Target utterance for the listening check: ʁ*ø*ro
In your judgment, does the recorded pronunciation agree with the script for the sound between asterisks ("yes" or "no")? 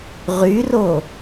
no